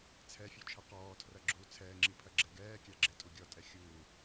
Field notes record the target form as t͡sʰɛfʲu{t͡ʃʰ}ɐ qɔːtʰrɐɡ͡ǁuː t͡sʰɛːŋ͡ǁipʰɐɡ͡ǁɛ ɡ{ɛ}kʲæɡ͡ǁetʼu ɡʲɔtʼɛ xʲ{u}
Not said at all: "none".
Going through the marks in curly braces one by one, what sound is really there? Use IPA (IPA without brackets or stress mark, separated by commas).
t͡ʃʰ, ɛː, uː